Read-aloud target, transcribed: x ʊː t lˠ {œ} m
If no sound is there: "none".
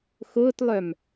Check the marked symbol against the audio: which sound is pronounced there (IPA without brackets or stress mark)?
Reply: œ